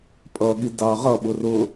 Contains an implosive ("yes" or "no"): yes